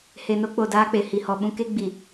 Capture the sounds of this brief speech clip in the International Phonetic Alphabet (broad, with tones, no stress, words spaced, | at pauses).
he˨no˦k͡po˨ daː˦k͡pe˨ hi˨hɔ˨ɓũ˦ ke˦ ɡ͡bi˨